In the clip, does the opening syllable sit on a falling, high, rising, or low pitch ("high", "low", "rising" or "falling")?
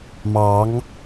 rising